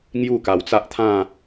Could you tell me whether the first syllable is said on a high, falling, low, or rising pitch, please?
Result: falling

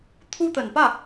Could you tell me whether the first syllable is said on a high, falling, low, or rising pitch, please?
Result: high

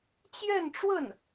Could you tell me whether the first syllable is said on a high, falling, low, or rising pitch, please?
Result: falling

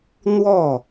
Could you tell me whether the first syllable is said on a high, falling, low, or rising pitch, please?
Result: falling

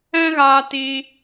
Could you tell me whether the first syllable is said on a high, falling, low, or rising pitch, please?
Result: high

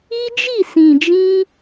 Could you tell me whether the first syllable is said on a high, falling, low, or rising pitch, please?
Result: high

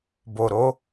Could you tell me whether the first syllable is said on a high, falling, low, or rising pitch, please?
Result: low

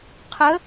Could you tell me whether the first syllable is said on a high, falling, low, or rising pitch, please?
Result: rising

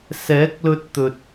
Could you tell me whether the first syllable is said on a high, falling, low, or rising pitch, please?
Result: rising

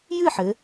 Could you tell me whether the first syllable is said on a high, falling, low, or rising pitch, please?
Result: falling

